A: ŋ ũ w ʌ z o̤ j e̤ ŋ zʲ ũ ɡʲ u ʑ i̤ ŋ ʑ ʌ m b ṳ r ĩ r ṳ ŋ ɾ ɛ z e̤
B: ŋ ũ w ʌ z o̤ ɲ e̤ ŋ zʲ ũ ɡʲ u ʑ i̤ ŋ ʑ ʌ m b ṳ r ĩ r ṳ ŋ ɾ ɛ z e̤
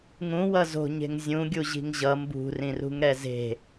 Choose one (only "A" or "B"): B